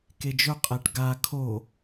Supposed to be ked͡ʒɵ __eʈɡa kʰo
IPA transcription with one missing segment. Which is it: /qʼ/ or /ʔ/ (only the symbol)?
qʼ